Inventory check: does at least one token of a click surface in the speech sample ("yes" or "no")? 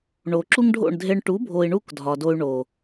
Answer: yes